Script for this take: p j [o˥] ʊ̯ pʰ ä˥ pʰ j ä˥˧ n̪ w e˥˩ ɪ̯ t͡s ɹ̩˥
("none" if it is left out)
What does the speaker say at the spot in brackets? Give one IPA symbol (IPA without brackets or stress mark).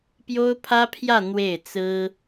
o˥